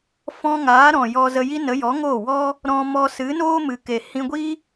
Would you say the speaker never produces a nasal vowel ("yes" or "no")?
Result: no